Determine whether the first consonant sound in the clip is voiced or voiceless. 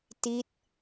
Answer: voiceless